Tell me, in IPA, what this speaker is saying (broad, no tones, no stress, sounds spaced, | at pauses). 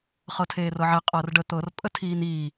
χ ɤ tʰ eː r ɤ ʕ ɛ qʼ ɤ r ɖ ə t̪ ɤ r pʼ ə tʰ iː n iː